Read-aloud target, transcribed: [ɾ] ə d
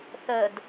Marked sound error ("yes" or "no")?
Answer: yes